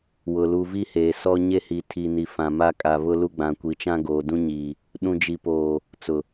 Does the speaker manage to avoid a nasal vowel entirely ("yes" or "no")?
no